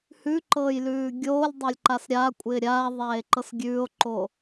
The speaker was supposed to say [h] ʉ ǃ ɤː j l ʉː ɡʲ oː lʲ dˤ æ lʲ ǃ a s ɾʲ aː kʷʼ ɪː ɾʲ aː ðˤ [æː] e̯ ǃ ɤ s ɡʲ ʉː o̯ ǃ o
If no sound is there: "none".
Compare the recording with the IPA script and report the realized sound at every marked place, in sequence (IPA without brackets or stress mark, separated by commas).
h, æː